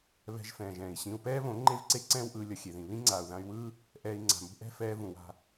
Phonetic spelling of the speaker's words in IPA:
β ɛ̤˧ ʒ f ɛ̃ː˨ ʒ ɛ̃ː˨ i̯ ɕ ĩ˧ u̯ p ɛː˦ β õ˨˦ ŋ͡ǃ e˦ v ǀ e˦ ǀ ɛ̃ː˦ w ʔ ɯː˧ lʲ ʌ˧ xʲ e˨ ð ĩ˨ β ĩ˦ ŋ͡ǀ aː˨ u̯ ð ã˧ y̯ w ɯː˦ | ʔ ɛː˧ i̯ ŋ͡ǀ a̤˨ m ṳ˦ ʔ ɛ̤˦ f ɛː˧ v ũ˨ w a̤˧

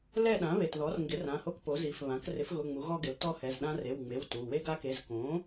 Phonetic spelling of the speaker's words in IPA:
l ɛ˦˨ ɗ ã˩˥ β e˩˧˩ t ð ɔ˩˥ r ŋ ɡ ɪ˩˥ r ã˩˧˩ h o˦˨ k p o˩˥ z i˩˧˩ f β ã˩˥ k r ɪ˩˥ f ɣ ʊ˩˧˩ ŋ͡m u˩˥ ɣ ɔ˦ ɡ ɪ˩˥ l t ɔ˦ h ɛ˩˧˩ z ɗ ã˦ r e˩˧˩ w ŋ͡m e˩˧˩ w t u˩˧˩ w e˦ ɡ a˦ k e˩˧˩ z k õ˩˥

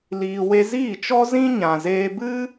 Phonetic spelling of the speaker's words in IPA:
l iː˧ w e˦ z iː˦˨ t͡ʃ ɔ˦ z ĩ˦ ɲ ã˨ z eː˧ b ɨ˦

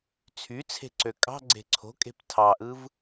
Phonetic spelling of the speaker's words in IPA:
t͡sʰ y t͡sʰ e̤ ǀ ø kʼ ɑ̤ ɡ͡ǀ e̤ ǀʰ o̤ kʼ e̤ p tʰ ɑ ʔ ɯ v

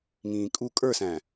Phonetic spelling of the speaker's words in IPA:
ŋ ĩː kʼ u kʼ ə˞ s æ̃

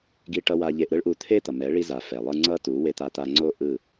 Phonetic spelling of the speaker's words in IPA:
ɡ i˧ ʈ ʌ˧ w a˧ ʎ e˧ ʔ ɾ ɯ˦ ɭ ʔ u˧ t̪ʰ e˦ t̪ ʌ˨ m ɛ˨˦ ɭ i˧ z a˨ f ɛ˨ lˠ ɯ˧ ŋ͡ǀ ʌ˦ t u˨˦ w e˧ t̪ a˧ t̪ a˧ ŋ͡ǀ o˦ ʔ ɯ˦˨

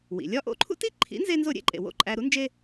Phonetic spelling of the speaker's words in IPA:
w ḭ˩ lʲ ɒ˥ ʔ o̰˧ ǃʰ ṵ˥ t i˥ ǃʰ ḭ˩˥ n z e˥ n z o˥˩ ɾʲ ḛ˥ ǃʼ ḛ˩ w o̰˥˩ ǃʼ æ˧ ɾ u˩˥ n d͡ʒ e˥

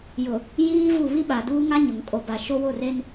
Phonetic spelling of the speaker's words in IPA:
j ʊ˨ | j iː˦ v u˦˨ β i˦ ɓ a˨ d uː˦ ŋ a˦ ɲ ʊ˨ ŋ kʼ o˨ b a˨ ʃ o˦ w o˦˨ r e˦ n

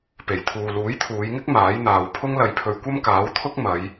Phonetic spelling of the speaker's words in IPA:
p e˨˩ j t̪ʰ uː˨ l uː˨˥ j t̪ʰ uː˨˧ j ŋ ɪ˥ k̚ m aː˨˥ j n̪ aː˨ w pʰ ʊ˥ ŋ l ɐ˧ j pʰ ɵ˧ ɥ kʷ ɐ˥ m k aː˨˥ w t̪ʰ ʊ˥ k̚ m ɐ˨˧ j

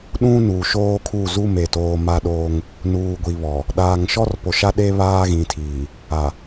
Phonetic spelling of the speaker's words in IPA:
ɗ ũ˦ n u˨ ʃ oː˦ kʰ u˦˨ z u˦ m e˨ t oː˨ m a˦ ɗ oː˦ ŋ | n uː˨ ɡʷ i˨ β ɔ˨ | ɗ aː˨ ŋ ʃ ɔ˦ r p o˨ ʃ a˦ ɗ e˦ β aː˦ ɣ ĩ˨ tʰ iː˨ | a˨

